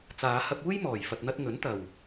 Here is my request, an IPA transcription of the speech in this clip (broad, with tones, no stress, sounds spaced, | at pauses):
t͡s aː˨˧ h ɐ˧ p̚ uː˥ j m ɔː˨ j f ɐ˧ t̚ n̪ ɐ˥ t̚ ŋ ɵ˨˥ n t̪ ɐ˨ w